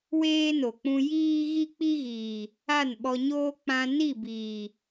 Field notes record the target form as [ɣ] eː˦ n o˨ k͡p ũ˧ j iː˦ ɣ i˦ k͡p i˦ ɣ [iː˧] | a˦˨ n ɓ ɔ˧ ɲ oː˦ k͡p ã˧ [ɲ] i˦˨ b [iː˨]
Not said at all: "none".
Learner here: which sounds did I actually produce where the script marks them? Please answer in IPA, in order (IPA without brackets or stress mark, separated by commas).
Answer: w, iː˨, n, iː˨